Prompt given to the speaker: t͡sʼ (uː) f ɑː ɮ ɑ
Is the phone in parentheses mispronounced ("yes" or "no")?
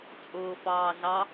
yes